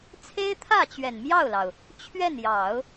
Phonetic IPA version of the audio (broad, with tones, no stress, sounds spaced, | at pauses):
t͡sʰ e˥ ɪ̯ t̪ʰ ä˥˩ t͡ɕ ɥ ɛ˨˩ n m j ɑ˥˩ ʊ̯ l ɑ˩ ʊ̯ | t͡ɕʰ ɥ ɛ˥˩ n j ɑ˨˩˦ ʊ̯